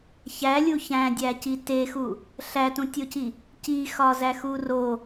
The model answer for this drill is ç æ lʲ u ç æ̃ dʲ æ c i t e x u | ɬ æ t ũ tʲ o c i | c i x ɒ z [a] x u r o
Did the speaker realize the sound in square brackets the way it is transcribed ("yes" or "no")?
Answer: no